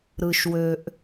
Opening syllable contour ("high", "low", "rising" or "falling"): low